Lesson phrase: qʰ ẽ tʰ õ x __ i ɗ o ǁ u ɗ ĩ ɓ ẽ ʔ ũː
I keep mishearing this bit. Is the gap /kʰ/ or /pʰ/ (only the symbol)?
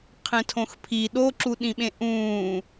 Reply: pʰ